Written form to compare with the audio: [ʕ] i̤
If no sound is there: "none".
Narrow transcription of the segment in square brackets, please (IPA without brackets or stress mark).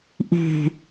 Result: ʔ